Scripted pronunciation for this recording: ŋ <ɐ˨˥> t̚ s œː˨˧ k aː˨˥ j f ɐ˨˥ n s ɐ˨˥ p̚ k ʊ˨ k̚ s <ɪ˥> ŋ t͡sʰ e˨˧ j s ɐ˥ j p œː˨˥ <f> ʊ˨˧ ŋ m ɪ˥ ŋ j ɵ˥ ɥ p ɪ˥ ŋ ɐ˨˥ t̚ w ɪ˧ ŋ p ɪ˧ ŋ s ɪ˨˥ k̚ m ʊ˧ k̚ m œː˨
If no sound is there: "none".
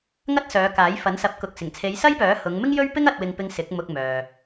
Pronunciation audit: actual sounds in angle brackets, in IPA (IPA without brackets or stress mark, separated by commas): ɐ˥, ɪ˨˩, h